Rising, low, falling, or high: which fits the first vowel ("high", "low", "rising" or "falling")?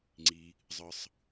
low